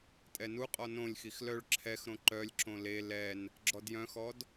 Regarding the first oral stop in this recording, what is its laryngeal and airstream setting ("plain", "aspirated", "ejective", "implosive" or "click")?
ejective